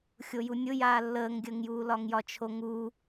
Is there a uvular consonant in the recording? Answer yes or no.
no